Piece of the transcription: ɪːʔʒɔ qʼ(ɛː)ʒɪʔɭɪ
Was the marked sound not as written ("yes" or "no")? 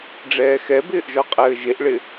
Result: yes